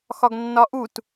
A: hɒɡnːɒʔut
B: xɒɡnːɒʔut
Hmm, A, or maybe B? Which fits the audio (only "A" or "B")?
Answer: B